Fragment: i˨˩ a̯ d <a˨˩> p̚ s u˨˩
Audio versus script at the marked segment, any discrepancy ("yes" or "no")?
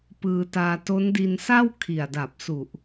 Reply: no